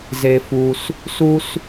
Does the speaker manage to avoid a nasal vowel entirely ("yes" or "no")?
yes